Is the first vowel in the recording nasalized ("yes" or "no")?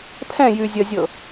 yes